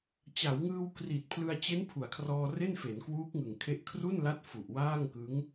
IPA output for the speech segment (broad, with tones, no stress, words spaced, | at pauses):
t͡ɕa˩˦wŋɯː˧wkri˨˩t̚ pʰlɯ˧a̯t͡ɕe˦˥n pʰu˩˦a̯kʰrɔː˧re˥˩n fe˩˦nkwuː˦˥k̚ŋɯ˨˩ŋkʰe˦˥ʔ kʰru˥˩nla˦˥t̚ fu˨˩ʔwaː˥˩ŋkɯ˦˥ŋ